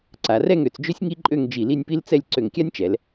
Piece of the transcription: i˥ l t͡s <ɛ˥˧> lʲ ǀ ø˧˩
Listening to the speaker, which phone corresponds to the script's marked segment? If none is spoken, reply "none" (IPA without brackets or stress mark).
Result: ɛ˥˧